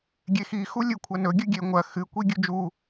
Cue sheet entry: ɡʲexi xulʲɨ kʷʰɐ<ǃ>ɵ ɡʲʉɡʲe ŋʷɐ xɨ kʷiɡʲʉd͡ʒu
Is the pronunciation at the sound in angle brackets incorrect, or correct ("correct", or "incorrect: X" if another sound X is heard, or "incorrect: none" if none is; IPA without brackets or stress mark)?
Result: incorrect: n